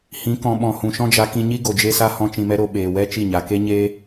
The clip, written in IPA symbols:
h ĩ˨˦ k ɔ̃˨ ɓ ɔ̃˨ h ũ˨ ʃ ɔ̃˦ d͡ʒ a˧ k ĩ˧ ɲ i˦ ɡ o˨ d͡ʒ e˧ s a˦ h ɔ̃˦ t͡ʃ ĩ˧ m ɛ˦ ɾ o˧ ɓ eː˨ w ɛ˦ t͡ʃ i˦˨ ɲ a˨ k e˦ ɲ eː˦

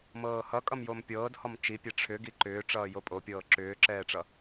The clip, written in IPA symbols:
m ɤː h ʌ kʼ ʌ m j o m pʲ ɤː d h ɔ m t͡ʃ i pʲ ɛ ʈ͡ʂʰ ʏ ɡ i ǃ ʏː ʈ͡ʂ ʌː j o pʼ o pʲ ɤː ǁ ʏː ǁ ɛː ʈ͡ʂ ʌ

